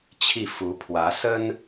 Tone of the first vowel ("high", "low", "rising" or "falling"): falling